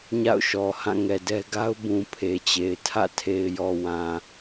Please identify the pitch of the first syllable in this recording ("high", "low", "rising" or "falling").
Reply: falling